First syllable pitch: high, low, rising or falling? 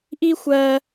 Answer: high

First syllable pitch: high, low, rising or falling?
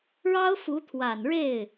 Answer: high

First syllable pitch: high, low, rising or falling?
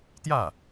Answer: falling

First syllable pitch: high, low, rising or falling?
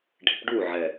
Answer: low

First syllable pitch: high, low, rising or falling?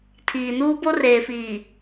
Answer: low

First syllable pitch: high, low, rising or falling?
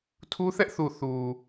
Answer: high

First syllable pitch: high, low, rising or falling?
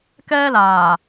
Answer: high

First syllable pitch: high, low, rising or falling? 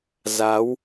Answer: rising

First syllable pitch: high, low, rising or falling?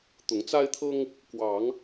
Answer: rising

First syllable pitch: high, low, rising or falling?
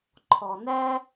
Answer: low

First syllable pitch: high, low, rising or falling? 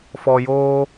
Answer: low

